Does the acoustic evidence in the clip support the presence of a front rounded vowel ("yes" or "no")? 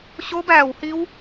no